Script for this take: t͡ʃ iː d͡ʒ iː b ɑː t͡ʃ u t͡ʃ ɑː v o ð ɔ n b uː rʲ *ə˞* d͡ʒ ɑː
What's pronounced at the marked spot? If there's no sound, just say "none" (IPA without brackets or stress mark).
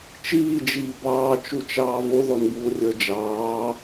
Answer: ə˞